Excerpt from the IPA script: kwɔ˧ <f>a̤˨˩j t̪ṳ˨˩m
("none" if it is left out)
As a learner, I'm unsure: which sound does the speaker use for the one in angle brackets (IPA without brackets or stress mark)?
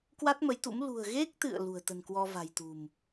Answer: v